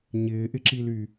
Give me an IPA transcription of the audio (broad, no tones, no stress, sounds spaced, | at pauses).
ɲ ɪː ʔ ɪ ǁ i l y